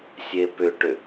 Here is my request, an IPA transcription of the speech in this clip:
sʲepʏʈʏ

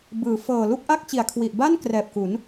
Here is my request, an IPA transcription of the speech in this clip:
bɯː˩˦ fɤː˨˩lu˥˩k̚ʔa˥˩k̚t͡ɕi˨˩a̯ kʰwi˨˩ʔba˥˩n krɛː˨˩p̚ku˩˦n

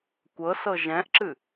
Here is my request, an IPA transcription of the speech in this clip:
kʷɤsɤ ʒɛ̃ʔǁɨ

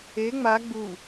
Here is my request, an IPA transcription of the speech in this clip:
e ŋ͡ma ɡ͡bu

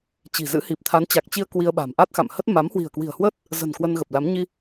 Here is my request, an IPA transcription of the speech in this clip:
t͡ɕi̤˨˩zɨ̰˧˥hi˨˩p̚ t̪ʰa˨˦nt͡ɕa˨˩k̚t͡ɕi˧ə̯ kwi˧ə̯ɓa̤˨˩m ʔa˦˥t̚xa̰˧˨mhə˦˥t̚ ma˨˦mhwi̤˨˩ə̯kwi̤˨˩ə̯hwəː˦˥t̚ | zə̤˨˩n kwə˧nɣə˨˩p̚la˨˦m ɲi˧

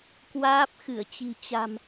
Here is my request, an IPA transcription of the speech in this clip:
kwaː˦˥p̚xɨ˧˩ə̯t͡ɕi̤˨˩ t͡ɕa̤˨˩m

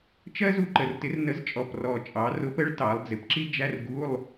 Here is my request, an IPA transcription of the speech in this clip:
t͡ʃɜ˥zu˨˩ǃə˨˩rtɪ˨˥r nə˨˥zt͡ʃʼɔ˨˩prɔ˨˩t͡ʃʼɑ˩˧ rʊ˨˥pə˨˥ɭ tɑ˩˧lˠd͡zɪ˩˧pǁi˥ d͡ʒæ˧˥˧rɡu˧˥˧lˠ

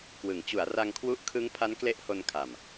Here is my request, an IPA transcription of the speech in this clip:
kwɯ˩˦ŋ t͡ɕu˩˦a̯ra˧ŋkʰwu˦˥ʔkʰɯ˦˥ŋ pʰa˦˥nkle˦˥ʔho˧nkʰa˨˩m

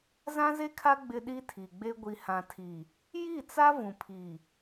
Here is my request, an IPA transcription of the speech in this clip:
zã˦ze˦kʰa˦ ɡ͡bɪ˦ɗi˦tʰi˨ɡ͡be˦ ɡʷi˨hã˨tʰi˨ | ji˦˨t͡sa˦ vũ˨pʰi˨

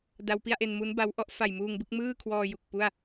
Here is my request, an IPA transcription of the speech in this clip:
da˧wpi˥˩a̯ʔe˧n mu˦˥nba˦˥w ʔɔ˦˥ʔfa˨˩j muː˧ŋbɯ˥˩k̚mɯː˥˩kʰwɔː˧ ju˨˩k̚pu˥˩a̯

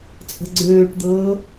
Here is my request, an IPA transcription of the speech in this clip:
t͡sʼə̤ɡ͡ǀøːʈd̪ɤː

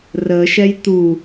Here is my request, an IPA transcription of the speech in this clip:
rəːʃɛj t̪u

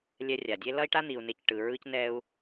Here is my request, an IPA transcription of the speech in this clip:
lʲɛ˧rʲa˨dʲe˦ lʌ˦i̯ʈa˦ n̪i˧u̯ne˦cʈɯ˧ ɹɯ˦cnɛ˦u̯

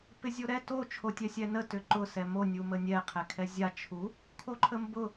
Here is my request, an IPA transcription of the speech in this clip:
pɪzʲoɾɛ to t͡ʃʰotʲɛsʲɛnə tʏǃʊ sɛmo nʲumənʲɛ qʰɛkʰɛzʲa t͡ʃʰu | kʰoǃʰəmbʊ

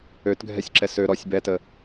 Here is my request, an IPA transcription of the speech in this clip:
øtɡʱɛsʲǁɛ sø ɾɔsʲ bɛtə

